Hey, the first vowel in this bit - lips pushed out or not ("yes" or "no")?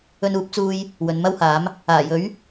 yes